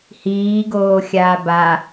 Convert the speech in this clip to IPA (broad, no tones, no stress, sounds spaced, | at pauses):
h iː ɡ oː xʲ aː b a